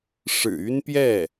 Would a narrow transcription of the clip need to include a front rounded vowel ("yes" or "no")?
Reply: yes